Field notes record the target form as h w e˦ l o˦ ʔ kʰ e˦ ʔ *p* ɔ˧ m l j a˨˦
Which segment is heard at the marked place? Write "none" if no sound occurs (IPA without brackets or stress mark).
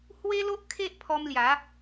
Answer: pʰ